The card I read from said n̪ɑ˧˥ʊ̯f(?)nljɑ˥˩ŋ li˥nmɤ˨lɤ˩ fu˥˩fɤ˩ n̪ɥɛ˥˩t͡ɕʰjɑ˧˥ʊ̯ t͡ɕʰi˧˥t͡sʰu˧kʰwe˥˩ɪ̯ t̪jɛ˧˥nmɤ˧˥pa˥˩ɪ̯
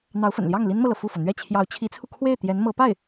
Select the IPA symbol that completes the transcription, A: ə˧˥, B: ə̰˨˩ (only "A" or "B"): B